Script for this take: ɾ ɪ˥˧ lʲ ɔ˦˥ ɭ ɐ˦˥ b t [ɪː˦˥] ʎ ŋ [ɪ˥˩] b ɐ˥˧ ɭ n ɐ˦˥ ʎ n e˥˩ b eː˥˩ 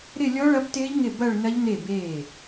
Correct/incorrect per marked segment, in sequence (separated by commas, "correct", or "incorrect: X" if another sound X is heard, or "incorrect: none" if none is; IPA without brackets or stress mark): correct, correct